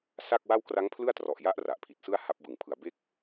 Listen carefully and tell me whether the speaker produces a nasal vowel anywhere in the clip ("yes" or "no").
no